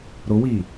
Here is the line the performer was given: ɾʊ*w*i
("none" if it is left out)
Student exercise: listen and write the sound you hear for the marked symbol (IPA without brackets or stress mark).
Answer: w